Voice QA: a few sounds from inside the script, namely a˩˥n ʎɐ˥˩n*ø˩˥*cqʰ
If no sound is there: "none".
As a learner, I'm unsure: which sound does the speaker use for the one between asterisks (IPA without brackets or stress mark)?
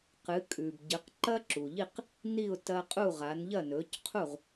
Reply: ɵ˩˥